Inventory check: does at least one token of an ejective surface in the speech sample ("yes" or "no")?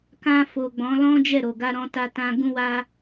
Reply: no